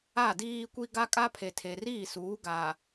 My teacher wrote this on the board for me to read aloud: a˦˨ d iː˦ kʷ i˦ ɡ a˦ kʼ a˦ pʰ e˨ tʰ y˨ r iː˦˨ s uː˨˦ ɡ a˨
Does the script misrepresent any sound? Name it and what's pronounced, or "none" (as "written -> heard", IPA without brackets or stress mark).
y˨ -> e˨